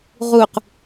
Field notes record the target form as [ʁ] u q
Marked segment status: correct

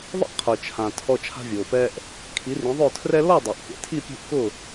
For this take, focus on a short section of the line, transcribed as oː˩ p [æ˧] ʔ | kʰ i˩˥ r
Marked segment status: incorrect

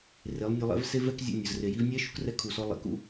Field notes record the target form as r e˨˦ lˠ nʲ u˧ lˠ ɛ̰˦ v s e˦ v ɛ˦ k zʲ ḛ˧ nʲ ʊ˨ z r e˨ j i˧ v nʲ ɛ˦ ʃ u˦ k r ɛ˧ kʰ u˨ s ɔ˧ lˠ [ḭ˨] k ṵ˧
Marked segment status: correct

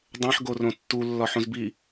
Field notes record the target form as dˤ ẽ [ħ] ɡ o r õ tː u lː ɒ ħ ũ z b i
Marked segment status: correct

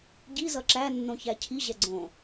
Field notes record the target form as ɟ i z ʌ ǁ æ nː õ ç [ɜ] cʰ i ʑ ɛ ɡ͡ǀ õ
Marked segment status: incorrect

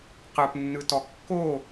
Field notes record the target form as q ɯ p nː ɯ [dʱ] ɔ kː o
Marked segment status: incorrect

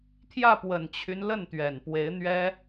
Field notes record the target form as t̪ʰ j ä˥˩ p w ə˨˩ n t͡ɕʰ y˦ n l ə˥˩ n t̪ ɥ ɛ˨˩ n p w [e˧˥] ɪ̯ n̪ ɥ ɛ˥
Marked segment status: correct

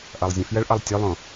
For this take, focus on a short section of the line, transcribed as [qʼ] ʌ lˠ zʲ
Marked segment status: incorrect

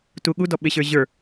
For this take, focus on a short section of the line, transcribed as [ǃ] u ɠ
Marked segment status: incorrect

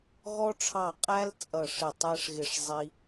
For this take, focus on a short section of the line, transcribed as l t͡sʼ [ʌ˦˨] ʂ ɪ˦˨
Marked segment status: correct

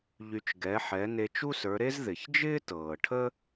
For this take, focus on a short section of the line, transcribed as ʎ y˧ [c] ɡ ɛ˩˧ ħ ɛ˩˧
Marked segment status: incorrect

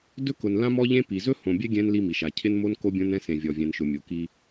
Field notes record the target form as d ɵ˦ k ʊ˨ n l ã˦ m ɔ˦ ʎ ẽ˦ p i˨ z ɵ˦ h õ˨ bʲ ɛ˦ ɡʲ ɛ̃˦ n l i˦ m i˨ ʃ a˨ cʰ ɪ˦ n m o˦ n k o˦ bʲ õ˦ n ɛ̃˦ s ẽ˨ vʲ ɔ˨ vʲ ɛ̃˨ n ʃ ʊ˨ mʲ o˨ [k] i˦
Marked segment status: correct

